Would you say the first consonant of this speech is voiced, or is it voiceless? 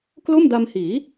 voiceless